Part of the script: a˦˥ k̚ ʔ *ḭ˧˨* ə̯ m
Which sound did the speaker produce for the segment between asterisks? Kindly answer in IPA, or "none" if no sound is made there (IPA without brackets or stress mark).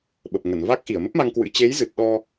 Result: i˧˩